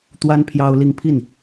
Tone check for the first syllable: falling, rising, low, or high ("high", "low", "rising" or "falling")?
high